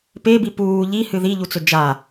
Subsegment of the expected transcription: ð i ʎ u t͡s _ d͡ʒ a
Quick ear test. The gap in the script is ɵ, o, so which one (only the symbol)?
ɵ